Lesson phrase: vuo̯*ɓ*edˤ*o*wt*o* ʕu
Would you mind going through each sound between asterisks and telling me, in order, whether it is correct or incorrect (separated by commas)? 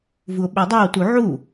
correct, correct, incorrect